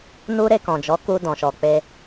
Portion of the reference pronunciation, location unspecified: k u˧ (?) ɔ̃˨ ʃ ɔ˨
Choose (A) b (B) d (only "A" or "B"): B